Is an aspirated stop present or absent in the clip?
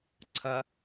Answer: present